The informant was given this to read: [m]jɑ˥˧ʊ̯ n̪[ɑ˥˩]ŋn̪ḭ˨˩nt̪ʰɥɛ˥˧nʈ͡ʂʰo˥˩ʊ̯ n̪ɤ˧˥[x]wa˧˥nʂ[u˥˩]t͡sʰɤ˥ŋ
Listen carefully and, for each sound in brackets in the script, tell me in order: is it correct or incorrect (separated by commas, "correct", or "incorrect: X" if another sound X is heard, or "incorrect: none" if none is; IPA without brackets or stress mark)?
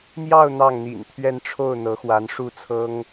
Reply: correct, correct, correct, correct